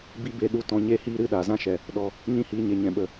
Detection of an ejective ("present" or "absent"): absent